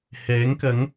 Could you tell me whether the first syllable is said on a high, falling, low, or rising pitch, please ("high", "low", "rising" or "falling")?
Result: rising